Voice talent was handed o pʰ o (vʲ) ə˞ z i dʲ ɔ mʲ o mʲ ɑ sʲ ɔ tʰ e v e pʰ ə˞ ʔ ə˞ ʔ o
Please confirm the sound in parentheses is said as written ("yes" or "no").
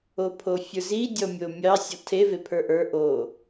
no